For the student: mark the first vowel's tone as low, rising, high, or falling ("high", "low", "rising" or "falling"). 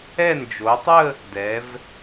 falling